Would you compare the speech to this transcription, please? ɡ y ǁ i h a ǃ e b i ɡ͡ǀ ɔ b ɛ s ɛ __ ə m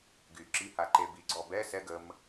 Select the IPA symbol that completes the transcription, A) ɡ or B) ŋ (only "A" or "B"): A